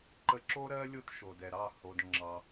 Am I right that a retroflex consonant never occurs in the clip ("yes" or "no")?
yes